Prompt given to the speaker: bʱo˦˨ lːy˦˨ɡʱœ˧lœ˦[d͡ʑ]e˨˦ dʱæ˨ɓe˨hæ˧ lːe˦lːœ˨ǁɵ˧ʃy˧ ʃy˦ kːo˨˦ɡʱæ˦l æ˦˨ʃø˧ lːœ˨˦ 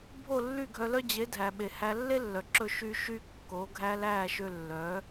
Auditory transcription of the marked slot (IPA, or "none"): d͡ʑ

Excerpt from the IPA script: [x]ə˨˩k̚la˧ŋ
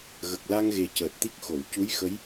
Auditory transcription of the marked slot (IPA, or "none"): ɣ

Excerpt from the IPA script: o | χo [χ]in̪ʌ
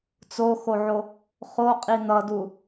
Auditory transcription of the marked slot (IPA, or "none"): qʼ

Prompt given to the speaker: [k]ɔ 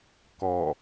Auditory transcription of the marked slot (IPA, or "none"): k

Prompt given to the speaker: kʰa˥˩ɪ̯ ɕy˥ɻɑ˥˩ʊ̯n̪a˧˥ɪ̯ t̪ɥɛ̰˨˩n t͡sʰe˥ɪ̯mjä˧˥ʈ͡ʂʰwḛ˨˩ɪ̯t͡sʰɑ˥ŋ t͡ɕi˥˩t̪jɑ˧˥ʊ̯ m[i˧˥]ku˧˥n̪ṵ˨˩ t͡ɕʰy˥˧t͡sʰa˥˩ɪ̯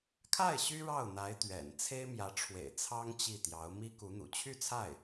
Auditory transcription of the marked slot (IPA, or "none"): i˥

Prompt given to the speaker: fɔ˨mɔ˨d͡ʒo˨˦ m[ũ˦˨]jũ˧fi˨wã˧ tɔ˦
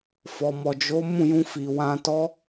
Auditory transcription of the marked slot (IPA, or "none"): ũ˦˨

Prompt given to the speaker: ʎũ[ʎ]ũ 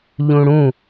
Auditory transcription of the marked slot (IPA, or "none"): ɽ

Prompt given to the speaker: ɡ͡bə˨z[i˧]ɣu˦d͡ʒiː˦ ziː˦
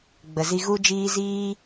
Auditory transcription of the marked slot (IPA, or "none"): i˧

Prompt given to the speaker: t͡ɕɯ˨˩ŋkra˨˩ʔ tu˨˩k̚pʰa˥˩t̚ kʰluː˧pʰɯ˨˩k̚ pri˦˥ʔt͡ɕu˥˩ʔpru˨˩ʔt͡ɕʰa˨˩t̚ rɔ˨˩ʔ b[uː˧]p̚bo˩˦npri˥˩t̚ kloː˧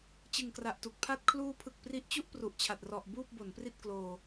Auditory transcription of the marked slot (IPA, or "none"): uː˥˩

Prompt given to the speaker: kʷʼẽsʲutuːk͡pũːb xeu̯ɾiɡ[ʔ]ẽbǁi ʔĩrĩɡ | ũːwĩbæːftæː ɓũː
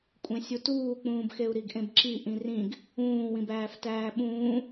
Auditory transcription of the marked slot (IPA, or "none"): ʔ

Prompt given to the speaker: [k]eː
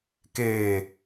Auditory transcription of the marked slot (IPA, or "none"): k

